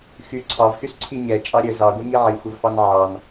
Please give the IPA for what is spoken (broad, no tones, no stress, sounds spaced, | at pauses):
x y ǀʰ ɑ v x y s ǀʰ i ɲ ɛ t͡ʃʼ ɑ ɾʲ ə z ɑ ɡʷ i ŋ i ʕ i xʷ ə v f ɑ n ʕ ɑ n